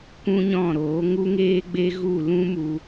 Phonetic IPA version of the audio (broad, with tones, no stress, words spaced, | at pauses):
kʷũ˦ɲɔ̃˦˨ɾoː˨˦ ŋu˦ŋeː˦ɡ͡be˦ɣu˦˨ lũ˦mu˧